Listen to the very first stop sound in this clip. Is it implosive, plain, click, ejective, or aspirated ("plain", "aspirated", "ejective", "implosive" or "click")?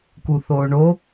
plain